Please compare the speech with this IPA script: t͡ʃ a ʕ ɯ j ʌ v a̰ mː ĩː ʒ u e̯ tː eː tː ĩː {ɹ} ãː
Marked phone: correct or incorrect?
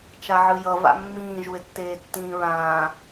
correct